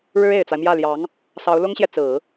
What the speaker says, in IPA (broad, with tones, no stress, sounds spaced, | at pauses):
ɻ ɻ̩˥ e˨˩ ɪ̯ t͡s a˦ ɪ̯ m j ä˥˩ l j ɑ˧˥ ŋ | s ɑ˧˥ ʊ̯ l ʊ˥ ŋ ɕ j ɛ˨ t͡s ɹ̩˨˩˦